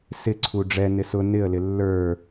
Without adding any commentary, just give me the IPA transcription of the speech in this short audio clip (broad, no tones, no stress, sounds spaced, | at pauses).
s ɪ ǀʰ u ɖ͡ʐ ɛ n ɪ s ʊ n ɪ ə̯ l ɪ lː ə˞